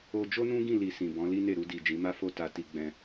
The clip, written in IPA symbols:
o˧ d͡ʒ o˦ n ũ˦ ɡ ĩ˦˨ l i˧ s ĩ˨ b ɔ̃˨˦ l i˦ n e˦˨ ɾ u˧ d i˨ d͡ʒ ĩ˨˦ m a˦ f o˦ t a˧ t i˧ ɡ͡b ɛ̃˧

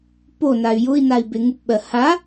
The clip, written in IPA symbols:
p o n a y̯ j ʊ i̯ n a i̯ b e ŋ u p ɓ ɜ h a

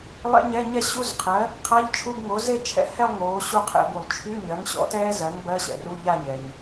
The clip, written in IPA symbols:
lˠ ɛ̰˦˥ ɲ ɛ˧˥˧ ɲ ɛ˥˧ ɕ u˧˥˧ z qʰ ɜ˩˥ | qʰ a˧˥˧ ʎ t͡ʃʰ u˧˥˧ b ŋ o˩˥ z e˥˧ t͡ʃʰ ɛ̰˧˥˧ h ɛ˥˧ lˠ ŋ oː˩˥ ɕ u˥˧ qʰ ɛ̰˧˩˧ b u˩ lˠ t͡ʃʰ y˧˥˧ ɲ ɜ˩˥ ŋ ɕ ɔ̰˩˥ t ɛː˦˥ z ɜ˩˥ ŋ b ɜ˧˥˧ ɕ ɛ̰˩ r u˧˥˧ ʎ a˥˧ ɲ ɛ˩ ɲ

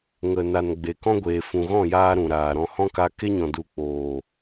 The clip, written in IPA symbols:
ŋ ə˨ n a˨ n ɡ͡b e˨ k ɔ̃˦ ɡʷ eː˨ f ũ˨ ɣ ɔ̃˦˨ j aː˧ ɾ ũ˨ ɾ aː˨ ɾ ɔ̃˨ h ɔ̃˦ k a˧ k e˦ ɲ ɔ̃˨ d u˨ k͡p oː˨

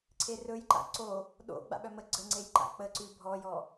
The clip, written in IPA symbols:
ǀʰ e r ɵ j ǃ a̰ ǀ o | ɗ o̰ ɡ͡b a̰ ɓ œ m ə ɡ͡ǀ ə ŋ͡ǀ e j ǃ a̰ k͡p ə ǀ ʉ bʱ ɔ j ɔ

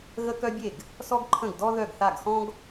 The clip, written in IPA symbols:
ɣ ə˥ k œ˥ bʲ e˥˩ ɡ | s ɔ˥ ɡ ǃʰ ə̃˥˩ ɡ d ɔ˥ ð œ˥˩ ɡ θ a˥˩ ɡ x ɔ̃˥ ɡ

